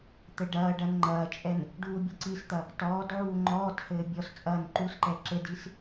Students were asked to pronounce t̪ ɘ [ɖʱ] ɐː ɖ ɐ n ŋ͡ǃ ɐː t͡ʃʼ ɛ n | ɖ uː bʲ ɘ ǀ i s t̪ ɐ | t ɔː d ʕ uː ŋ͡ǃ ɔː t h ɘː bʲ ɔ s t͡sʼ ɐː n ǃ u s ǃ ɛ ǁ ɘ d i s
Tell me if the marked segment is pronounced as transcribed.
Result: no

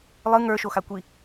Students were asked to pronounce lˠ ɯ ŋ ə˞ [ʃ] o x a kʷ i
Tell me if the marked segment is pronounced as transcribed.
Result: yes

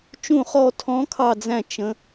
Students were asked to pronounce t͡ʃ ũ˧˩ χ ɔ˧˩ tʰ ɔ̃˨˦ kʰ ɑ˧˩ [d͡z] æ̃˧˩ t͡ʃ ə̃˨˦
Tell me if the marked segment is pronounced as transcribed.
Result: yes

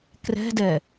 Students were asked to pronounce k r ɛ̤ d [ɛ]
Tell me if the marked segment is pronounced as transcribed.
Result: yes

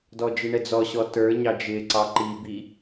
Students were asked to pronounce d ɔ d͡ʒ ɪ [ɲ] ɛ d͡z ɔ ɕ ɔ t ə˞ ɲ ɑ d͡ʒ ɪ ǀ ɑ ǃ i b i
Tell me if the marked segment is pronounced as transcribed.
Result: no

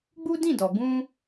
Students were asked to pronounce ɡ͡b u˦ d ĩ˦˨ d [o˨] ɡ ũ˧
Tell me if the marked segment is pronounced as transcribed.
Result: no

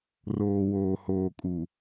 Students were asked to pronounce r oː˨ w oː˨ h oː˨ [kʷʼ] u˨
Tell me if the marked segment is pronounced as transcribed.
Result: no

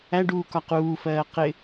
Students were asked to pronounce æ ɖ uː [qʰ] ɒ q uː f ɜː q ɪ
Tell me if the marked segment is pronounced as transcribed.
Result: no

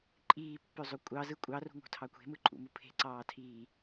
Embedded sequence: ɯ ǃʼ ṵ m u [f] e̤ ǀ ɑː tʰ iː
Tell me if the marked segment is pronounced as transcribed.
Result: no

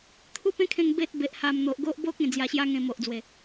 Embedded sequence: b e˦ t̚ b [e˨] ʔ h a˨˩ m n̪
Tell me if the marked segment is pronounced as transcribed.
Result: yes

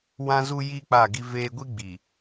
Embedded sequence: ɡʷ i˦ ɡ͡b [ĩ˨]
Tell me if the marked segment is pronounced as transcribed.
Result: no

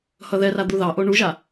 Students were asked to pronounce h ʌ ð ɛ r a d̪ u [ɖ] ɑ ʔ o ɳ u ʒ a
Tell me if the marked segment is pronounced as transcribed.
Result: no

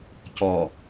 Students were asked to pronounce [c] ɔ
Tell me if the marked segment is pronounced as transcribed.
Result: yes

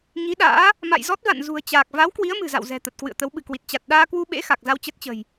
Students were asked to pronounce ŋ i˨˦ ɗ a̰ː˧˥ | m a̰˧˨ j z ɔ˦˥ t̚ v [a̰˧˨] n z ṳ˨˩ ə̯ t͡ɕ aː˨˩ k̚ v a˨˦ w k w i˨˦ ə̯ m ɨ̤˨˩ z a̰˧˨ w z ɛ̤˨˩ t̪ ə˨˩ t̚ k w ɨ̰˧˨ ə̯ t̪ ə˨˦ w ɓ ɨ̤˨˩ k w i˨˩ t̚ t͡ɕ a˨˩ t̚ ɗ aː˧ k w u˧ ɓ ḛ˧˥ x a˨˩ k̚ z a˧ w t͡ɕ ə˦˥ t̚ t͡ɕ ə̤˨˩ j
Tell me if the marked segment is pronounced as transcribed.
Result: yes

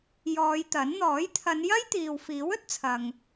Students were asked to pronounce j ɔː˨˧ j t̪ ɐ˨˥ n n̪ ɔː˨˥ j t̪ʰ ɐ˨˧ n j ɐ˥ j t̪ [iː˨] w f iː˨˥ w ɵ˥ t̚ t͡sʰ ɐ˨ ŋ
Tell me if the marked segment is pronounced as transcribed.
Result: yes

